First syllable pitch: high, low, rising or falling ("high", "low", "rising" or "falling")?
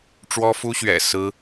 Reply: high